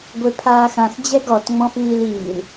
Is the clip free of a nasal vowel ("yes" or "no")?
no